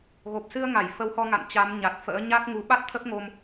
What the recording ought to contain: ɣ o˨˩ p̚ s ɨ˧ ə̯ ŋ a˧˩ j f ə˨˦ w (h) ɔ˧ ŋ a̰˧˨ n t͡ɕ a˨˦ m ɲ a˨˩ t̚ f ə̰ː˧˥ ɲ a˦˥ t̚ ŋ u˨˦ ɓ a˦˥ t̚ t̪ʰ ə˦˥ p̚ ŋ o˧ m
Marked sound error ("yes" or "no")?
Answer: no